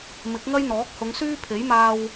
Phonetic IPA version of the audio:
m ɪ˨˥ k̚ ŋ ɐ˥ j n̪ ɔː˨˥ k̚ h ʊ˨˧ ŋ s yː˥ pʰ e˨˥ j m aː˧ w

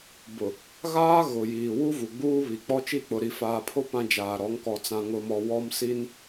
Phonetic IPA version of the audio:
b ʊ˨ | ɣ aː˦ ɣ ʊ˨ j iː˨ w u˦ v u˨ ɡ͡b uː˦ β i˨ k͡p ɔ˦ t͡ʃ i˦˨ k͡p ʊ˨ ɾ i˨ f aː˨ pʰ o˦ p ã˦ d͡ʒ aː˨ ɾ ɔ˨˦ ŋ k ɔ˨ t͡s ã˨ ŋ ʊ˨ m ɔ˨ w ɔ˦ m s i˦ n

